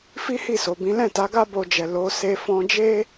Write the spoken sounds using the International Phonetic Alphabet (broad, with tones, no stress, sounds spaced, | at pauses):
f i˦ h i˦˨ s o˨ b ĩ˨˦ l ɛ̃˦˨ t a˨˦ ɡ a˦ b o˧ d͡ʒ ɛ˨ l o˨˦ s e˧ f ɔ̃˧ d͡ʒ e˦